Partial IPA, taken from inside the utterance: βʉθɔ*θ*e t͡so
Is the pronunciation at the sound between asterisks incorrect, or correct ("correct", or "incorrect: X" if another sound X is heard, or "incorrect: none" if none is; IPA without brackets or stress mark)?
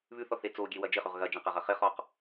correct